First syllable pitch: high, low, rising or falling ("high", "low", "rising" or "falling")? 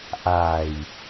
low